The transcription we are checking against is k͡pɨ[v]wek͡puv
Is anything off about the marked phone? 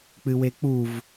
yes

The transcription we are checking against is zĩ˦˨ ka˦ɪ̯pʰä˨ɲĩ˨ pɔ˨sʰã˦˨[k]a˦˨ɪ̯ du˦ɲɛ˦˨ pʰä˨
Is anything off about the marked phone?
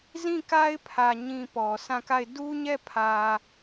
no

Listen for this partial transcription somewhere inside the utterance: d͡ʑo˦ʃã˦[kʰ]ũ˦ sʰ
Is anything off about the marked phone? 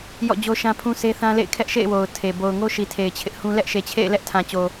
yes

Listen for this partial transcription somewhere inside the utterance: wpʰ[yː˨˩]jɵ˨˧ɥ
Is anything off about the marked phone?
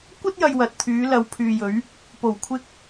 yes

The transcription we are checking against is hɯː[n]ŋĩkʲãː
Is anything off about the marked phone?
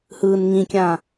no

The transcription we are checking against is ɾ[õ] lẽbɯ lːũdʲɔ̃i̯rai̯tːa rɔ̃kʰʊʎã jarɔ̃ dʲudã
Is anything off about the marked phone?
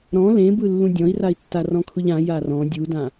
yes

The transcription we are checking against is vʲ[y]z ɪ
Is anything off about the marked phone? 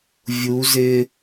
yes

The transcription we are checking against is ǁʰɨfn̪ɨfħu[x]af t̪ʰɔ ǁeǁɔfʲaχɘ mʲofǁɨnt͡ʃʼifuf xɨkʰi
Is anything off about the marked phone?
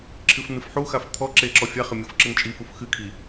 no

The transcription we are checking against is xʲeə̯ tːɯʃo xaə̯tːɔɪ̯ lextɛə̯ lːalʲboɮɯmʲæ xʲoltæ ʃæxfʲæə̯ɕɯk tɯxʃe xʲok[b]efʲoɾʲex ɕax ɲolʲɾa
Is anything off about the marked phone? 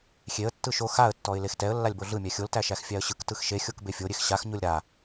no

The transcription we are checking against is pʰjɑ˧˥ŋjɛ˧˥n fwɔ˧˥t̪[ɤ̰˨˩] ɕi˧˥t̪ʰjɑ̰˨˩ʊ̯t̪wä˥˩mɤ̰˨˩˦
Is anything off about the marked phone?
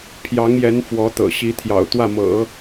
no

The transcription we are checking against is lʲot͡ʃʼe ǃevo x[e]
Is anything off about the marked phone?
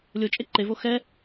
yes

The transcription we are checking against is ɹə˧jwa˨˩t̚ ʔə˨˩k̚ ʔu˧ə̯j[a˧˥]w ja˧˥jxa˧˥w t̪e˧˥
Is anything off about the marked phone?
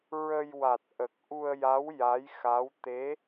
no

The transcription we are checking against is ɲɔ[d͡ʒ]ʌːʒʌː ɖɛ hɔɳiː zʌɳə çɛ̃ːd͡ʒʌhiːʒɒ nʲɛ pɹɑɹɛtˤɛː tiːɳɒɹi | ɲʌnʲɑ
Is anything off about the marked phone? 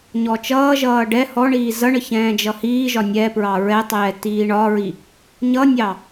yes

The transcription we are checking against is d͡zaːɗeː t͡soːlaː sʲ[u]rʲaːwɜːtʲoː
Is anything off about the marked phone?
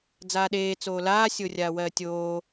yes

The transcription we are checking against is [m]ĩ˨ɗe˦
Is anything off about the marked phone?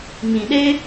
no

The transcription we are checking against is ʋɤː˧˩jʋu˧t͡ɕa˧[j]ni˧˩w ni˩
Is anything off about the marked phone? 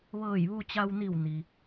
yes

